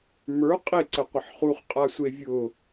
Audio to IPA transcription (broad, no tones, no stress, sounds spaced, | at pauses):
m ə˞ qʼ e ǀ ə qʷ ə ħ χ u χ qʼ a sʷ e vʲ ʊ